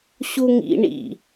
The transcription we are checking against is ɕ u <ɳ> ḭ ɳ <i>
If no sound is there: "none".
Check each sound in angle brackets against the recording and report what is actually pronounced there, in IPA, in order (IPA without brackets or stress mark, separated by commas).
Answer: ŋ, ḭ